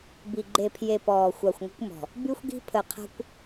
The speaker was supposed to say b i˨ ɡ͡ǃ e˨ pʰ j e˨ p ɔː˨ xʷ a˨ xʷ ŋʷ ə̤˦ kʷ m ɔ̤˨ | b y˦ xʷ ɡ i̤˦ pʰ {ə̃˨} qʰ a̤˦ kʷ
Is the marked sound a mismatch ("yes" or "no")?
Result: yes